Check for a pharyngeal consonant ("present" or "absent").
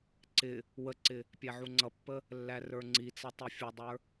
present